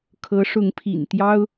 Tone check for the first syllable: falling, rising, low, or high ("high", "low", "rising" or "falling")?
rising